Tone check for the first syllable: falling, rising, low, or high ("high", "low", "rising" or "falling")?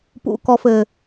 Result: low